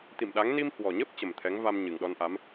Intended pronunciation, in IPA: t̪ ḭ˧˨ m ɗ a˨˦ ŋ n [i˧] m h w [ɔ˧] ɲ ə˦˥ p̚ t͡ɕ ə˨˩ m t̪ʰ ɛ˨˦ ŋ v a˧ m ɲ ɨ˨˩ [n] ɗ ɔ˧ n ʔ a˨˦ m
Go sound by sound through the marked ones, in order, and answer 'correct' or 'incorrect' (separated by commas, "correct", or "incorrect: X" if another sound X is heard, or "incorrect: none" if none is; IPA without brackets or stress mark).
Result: correct, incorrect: ɔ˨˩, incorrect: ŋ